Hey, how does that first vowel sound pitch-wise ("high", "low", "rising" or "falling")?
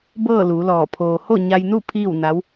falling